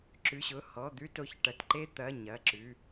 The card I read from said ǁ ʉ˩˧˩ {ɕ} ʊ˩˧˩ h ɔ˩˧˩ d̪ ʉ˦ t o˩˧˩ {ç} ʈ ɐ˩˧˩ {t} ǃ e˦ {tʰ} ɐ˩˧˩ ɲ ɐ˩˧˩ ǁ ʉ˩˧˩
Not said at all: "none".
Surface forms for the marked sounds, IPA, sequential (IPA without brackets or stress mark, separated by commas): ɕ, ç, t, t̪